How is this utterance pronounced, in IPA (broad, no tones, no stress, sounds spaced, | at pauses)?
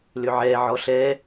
l ʏ ʕ ɛ ʕ ɔ ɬ ɛ